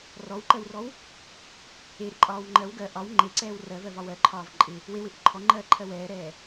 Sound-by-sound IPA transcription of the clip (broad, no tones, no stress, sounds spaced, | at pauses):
r ɔ w ǃ ɜ w r ɔ w | e ɾ ɪ ǃʼ ɒː w ŋ͡ǃ ɜ w ɡ ɜ ʔ ɒ w ŋ͡ǃ e ǀ ɛː w r ɜ v ɜ v ɒ w ɜ ǃʰ ɒː v ǃʼ ɪ | w e w ɪ ʔ ɪ ǃʰ ɔ ŋ͡ǃ ɜː ǃʰ ɜ w ɛː ɾ ɛː